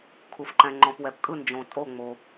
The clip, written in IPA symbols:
kʰ u˩ f ǃ ɛ̃˩ ŋ͡ǃ ɔ̃˩ p w ɛ˩ p kʼ ɯ˧˩ n d͡ʒ õ˩ tʼ o˧˩ ŋ͡m o˩

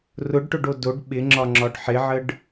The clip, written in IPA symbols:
r ʊ ɖ ʈ ʊ ɖ o d o ɖ ɓ ɪ ŋ͡ǁ ɒ ŋ͡ǁ ɒ ɖ ħ ɪ ʕ ə ɖ

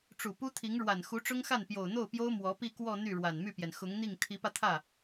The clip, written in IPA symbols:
ʈ͡ʂ u˨˩ p u˥ t̪ʰ i˧˥ ŋ ɻ w a˨˩ n x u˧˥ ʈ͡ʂ ʊ˥ ŋ x a˥˩ n p j o˨˩ ʊ̯ n̪ o˥˩ ʊ̯ p j o˥ ʊ̯ m w ɔ˧˥ p i˥˧ k w ɔ˥˧ n̪ y˥˩ ɻ w a˨˩ n m y˥˩ p j ɛ˩ n x ʊ˧˥ ŋ n̪ i˥˩ ŋ t̪ʰ i˧˥ p ä˧ t̪ʰ ä˥˩

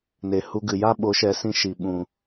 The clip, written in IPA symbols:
n e˨ h u˧ ɡ ɨ˨ j a˦ ɓ o˨˦ ʃ ɛ˨˦ s ĩ˧ ʃ i˨ ɓ ũ˨

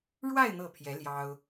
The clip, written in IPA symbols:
ɻ w a˥˧ ɪ̯ n̪ ɤ˥˩ pʰ j ɛ˧˥ l j ɑ˥ ʊ̯

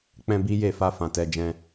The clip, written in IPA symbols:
k͡p ɛ̃˧ b i˦ j e˦˨ f a˧ f ã˨ t ɛ˧ d͡ʒ ɛ̃˧

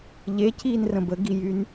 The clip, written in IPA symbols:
ʎ e c iː n r ə̃ b ə ɡ i j y n

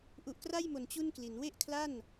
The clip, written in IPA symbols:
ʔ u˨˩ ʔ k r a˥˩ j m o˨˩ n t͡ɕ u˥˩ n k l i˩˦ n w e˥˩ ʔ kʰ l a˥˩ n

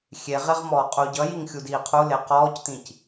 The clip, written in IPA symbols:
xʲ e ʁ e ʁ m ɔː qʼ u ɟ ʌ j i ŋ xʲ u d iː qʰ u l e q ɔː c t̪ ĩ c

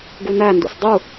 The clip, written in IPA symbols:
ɡ u n æ n d ṵ s dˤ u

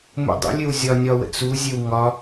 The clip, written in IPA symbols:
m ṵ dˤ ə̰ lʲ ɘ w zʲ ɒ nʲ ɒ w ə̰ t͡s u zʲ ɘ w ŋ ɒ

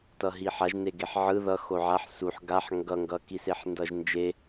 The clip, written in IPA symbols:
t ʌ ɦ i ħ a ʒ n e ɡ e ħ ʕ ɯ ð ʌ x o ʕ a ħ s u ħ ɡ a ħ ŋ ɡ ʌ ŋ ɡ ʌ k i s e ħ n d ʌ ʒ n d͡ʒ e

